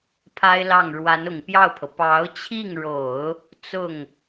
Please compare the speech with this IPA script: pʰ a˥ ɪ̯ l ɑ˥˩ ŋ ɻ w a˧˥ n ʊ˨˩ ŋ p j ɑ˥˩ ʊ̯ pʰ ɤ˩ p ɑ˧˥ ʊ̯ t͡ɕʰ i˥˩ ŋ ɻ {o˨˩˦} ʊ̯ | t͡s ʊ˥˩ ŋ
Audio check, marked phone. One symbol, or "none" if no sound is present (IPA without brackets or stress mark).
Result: o˨˩˦